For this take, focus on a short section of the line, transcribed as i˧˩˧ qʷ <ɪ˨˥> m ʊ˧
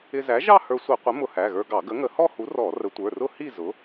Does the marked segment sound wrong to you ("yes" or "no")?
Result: no